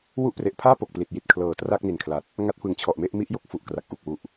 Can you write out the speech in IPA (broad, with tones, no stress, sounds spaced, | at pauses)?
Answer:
w u˦˥ ʔ p r e˨˩ ʔ pʰ aː˥˩ p o˨˩ k̚ p l i˨˩ t̚ j i˨˩ t̚ kʰ l ɤː˨˩ t r a˥˩ k̚ n i˨˩ n kʰ l a˨˩ t̚ | ŋ a˦˥ t̚ f ɯ˨˩ ŋ t͡ɕʰ ɔ˨˩ ʔ m e˥˩ ʔ m i˥˩ ʔ j o˥˩ k̚ f u˨˩ ʔ k r a˨˩ k̚ ʔ u˨˩ k̚ w u˨˩ ʔ